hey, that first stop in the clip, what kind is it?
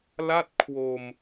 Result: plain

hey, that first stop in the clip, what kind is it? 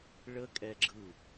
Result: ejective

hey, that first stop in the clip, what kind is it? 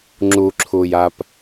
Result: click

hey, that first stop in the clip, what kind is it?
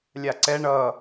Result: click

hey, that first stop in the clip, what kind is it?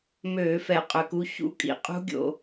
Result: ejective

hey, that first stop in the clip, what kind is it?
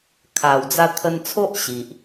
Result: aspirated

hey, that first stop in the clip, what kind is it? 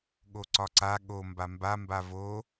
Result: implosive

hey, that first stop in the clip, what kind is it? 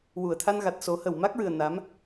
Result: aspirated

